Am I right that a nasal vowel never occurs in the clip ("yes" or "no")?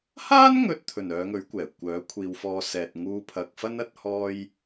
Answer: yes